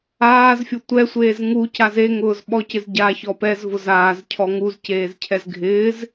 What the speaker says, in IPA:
aː z fʲ o tʷ ɛ sʷ eː z ŋ u c a z e ŋ ʊː z ɓ ɔ c ɪ z ɟ a ç ɔ p ɛ z v ʊ z aː z cʰ ɔ ŋ u z c eː z cʰ ɛ z ɡʱ ɪː z

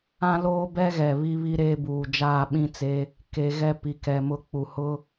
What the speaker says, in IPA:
ã˦ l oː˦ b ɛ˦ ɣ ɛ˨ β i˦ β i˦ ɾ eː˦ b uː˨ d͡ʒ aː˦˨ ɓ ĩ˦ t͡s eː˦ | k e˨ ɣ ɛ˦ p i˨ k ɛ˨ m ʊ˦ k͡p u˨ h ʊ˦

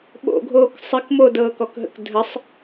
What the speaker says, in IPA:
ɓ o̰ ɡʱ oː k sˤ ɘ k m o d ɤː k ɔ k ɦ ə̰ k dʱ ə sˤ

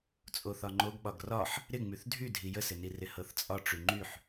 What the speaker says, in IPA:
t͡sʼ o θ ɒ ŋ͡ǃ o ɡ ɓ ɒ ɡ r ɒ ħ | ɾ ɪ ŋ͡m y θ dʱ y dʱ i j ə s ɪ n i r ɪ h ɤ θ t͡sʼ ɒ ʈ͡ʂ y ŋ͡ǃ y ħ

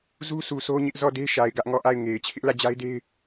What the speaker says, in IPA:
z u˦ s u˨ sʰ o˦ ɲ ɪ˦ ʔ z ɔ˦˨ d e˦ ʃ a˨ ɪ̯ ɡ ä˦ ʔ ŋ ɔ˦˨ ʔ a˦˨ ɪ̯ ŋ e˨ ɪ̯ t͡ɕʰ ɪ˦ ʔ l ä˦˨ d͡ʑ a˦ ɪ̯ d e˦ ɪ̯

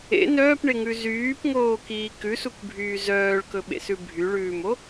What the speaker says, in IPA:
ḛ n œː p ɳ e ŋ ʉ z yː p ŋ oː k iː k ʉ s u k bʱ yː z œː ɭ k ɵ ɓ ḛ s ʉ bʱ y ɭ ʉː m o

